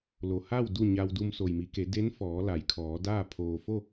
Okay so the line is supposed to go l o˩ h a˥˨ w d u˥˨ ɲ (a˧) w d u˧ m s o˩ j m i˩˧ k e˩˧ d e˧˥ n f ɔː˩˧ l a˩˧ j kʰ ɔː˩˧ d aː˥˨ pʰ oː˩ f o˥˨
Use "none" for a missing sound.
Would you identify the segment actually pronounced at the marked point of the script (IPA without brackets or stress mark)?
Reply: a˧